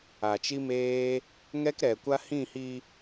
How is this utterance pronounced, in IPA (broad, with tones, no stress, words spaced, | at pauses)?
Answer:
a˨t͡ʃi˦ meː˦ | ŋɛ˦kɾɛ˨kʷa˦ hĩ˦˨hi˧